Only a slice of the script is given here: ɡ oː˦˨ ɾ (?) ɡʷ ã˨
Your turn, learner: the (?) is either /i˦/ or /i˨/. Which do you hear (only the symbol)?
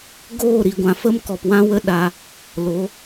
i˨